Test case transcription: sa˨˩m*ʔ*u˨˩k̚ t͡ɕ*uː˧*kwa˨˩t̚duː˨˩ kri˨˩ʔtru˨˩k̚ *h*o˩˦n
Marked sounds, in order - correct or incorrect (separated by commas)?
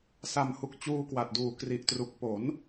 incorrect, correct, incorrect